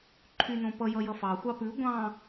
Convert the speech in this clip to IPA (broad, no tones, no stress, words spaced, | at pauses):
ǃʰynõpʌ jʌjʌfɑ xʷɑpʉ ɡʷɑ̃